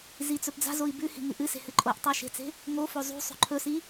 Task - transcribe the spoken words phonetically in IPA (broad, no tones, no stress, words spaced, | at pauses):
zit͡sɵpd͡za̤zoi̯ bʉhi̤ ŋɨʔɨse̤ hɨǃʼoʔtˤa ʃe̤t͡se̤ | ŋofo zˤṳ sˤo̤ǃʰɵsi